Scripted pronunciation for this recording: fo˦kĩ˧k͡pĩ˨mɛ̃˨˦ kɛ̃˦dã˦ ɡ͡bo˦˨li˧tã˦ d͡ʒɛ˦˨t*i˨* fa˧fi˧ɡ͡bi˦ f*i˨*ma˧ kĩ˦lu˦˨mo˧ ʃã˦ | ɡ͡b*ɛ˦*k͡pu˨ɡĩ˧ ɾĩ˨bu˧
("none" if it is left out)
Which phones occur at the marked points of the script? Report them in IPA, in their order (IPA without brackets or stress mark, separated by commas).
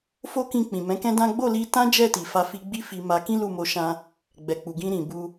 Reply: i˨, i˧, ɛ˨